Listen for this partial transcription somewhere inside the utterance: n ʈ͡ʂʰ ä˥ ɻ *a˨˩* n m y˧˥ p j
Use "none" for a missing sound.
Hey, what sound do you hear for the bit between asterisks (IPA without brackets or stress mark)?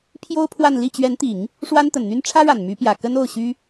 a˨˩